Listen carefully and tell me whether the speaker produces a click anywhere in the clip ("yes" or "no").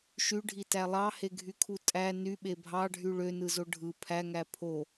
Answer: no